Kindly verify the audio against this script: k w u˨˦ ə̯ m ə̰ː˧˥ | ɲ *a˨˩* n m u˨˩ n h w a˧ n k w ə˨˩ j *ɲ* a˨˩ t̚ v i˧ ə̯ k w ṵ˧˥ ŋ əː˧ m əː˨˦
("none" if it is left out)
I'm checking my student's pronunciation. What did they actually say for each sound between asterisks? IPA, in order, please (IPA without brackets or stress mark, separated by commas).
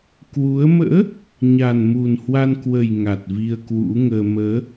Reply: a˨˩, ŋ